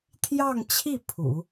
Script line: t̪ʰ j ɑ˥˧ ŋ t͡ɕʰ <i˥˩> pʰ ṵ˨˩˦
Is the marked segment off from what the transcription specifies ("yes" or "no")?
no